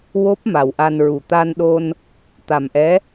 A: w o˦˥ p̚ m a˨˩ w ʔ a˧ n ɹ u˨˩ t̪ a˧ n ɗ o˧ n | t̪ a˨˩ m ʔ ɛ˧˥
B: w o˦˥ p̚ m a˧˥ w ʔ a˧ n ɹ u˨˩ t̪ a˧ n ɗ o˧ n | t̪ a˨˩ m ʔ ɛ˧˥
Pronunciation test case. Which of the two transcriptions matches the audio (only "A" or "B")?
A